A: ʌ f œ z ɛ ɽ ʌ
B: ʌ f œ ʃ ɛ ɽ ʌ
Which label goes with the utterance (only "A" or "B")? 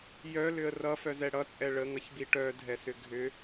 A